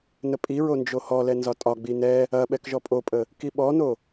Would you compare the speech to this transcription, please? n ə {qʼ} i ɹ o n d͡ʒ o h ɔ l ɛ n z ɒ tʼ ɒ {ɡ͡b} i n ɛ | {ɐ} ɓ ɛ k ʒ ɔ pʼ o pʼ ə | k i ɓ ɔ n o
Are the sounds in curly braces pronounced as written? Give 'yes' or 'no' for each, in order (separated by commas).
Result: no, yes, yes